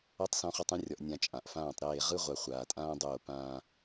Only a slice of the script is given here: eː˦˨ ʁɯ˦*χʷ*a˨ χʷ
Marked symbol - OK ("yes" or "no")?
no